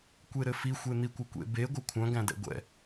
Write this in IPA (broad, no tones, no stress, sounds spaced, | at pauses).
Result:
kʷ e ɾ ɘ f i xʷ e n̪ i kʷ ɘ kʷ ḛ b e ɡʷ ɘ kʷʰ œ̃ ɡ æ̃ d ɛ̰ ɡʷ ɛ̰